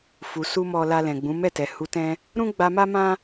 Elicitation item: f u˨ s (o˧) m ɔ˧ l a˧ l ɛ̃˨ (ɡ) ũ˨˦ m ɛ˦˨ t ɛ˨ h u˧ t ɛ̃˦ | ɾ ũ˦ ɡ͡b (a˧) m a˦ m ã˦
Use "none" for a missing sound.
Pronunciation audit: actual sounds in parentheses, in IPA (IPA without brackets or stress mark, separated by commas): u˧, ɡ͡b, a˧